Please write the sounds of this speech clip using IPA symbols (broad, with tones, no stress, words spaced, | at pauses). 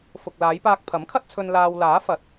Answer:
fʊ˨k̚laː˨˧j paː˧k̚pʰɐ˨˥mkʰɐ˥t̚t͡sʰɵ˧n laː˧w laː˨˥fɐ˨˥t̚